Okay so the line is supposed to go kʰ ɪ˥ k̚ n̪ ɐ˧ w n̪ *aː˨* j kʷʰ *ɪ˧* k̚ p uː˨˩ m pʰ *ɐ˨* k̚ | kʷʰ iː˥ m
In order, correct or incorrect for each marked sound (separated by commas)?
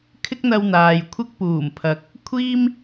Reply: correct, correct, correct